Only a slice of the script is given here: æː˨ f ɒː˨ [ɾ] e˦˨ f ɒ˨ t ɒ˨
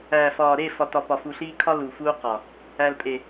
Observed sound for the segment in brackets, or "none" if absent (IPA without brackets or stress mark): ɾ